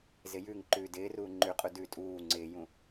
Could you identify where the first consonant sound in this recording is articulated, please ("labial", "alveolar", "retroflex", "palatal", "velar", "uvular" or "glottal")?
alveolar